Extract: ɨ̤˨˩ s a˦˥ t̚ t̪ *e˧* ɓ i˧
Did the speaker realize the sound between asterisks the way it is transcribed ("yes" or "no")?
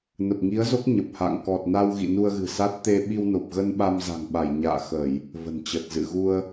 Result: yes